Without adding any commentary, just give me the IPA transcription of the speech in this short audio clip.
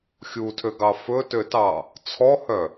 xʲ u tʰ ø ɡ ɑ f ɵ t ø t ɑ | t͡sʰ ɔ h œ

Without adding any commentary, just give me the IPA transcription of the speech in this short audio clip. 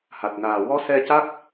h a˨˩ t̚ n aː˨˩ w ɔ˧˥ s ɛ˧ c a˦˥ k̚

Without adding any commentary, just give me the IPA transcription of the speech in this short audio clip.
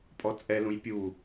pʼ ɔ t͡sʼ ɛ l ũ j pʲ u

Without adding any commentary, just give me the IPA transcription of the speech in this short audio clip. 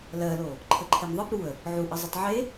l ɜ l o | ǃʰ ə ǃʰ e m ðˤ ə b ɾ u ə̯ | ʕ u ʔ ə zˤ ə tˤ ʕ e

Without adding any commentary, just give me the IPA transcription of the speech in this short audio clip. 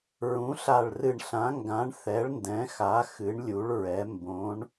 ɹ ũ˨˥ ɬ a˧˩ ɭ r ɨ˧˩ ɳ ɬ ã˨˥ ŋ ɡ ã˨˥ ɳ θ ɛ˨˥ ɭ n d ɛ̃˨˥ x a˨˥ x ɨ˨˥ ɳ lʲ u˨˥ ɭ ɹ ɛ˨˥ m b õ˨˥ ɳ

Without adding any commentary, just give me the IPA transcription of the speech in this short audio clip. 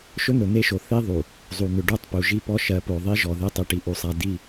ʃ ɵ˦ n̪ ɵ˨ n̪ e˦ ʃ o˨ θ i˦ ðˤ u˨ | zˤ u˨ n̪ ʏ˨ ɖ u˦˨ tˤ p u˨ ʒ i˦ p ɔ˦ ʃ ɜ˨˦ p o˨ ðˤ i˦ ʒ ɔ˨ ð e˦ tˤ ɨ˨ ʈ i˨ ʔ u˨ sˤ a˨ d i˦˨

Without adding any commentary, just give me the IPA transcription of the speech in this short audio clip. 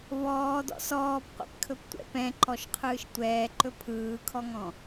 v ɔː d ɔ̰ s ɔː p qʷ ɛ̰ p kʰ ɵ p tʷ ɛ̰ p ɛ̃ ǃ ɔ ʃ qʰ ɯː ʃ tʷ ɛː ǃ ɵ pʰ ɯː kʰ ɔ ŋ ɔ̃

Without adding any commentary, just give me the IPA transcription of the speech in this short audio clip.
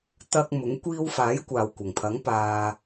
t̪ ɐ˧ k̚ m ʊ˨˥ ŋ kʷ iː˧ w f aː˨˥ j kʷ aː˨ w kʷ ɐ˨˩ ŋ pʰ ɐ˨˥ ŋ p aː˧

